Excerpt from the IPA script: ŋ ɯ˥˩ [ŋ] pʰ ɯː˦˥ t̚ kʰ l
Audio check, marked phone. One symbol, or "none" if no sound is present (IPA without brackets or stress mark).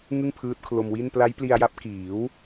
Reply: ŋ